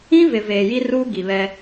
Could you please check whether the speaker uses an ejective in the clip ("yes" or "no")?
no